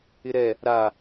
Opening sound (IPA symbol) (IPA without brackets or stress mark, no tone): ɪ